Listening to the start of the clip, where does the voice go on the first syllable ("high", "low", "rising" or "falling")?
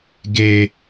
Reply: low